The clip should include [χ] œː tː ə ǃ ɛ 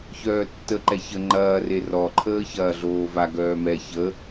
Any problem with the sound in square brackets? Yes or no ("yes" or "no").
yes